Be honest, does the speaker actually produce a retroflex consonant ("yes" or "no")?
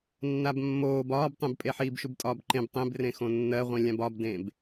no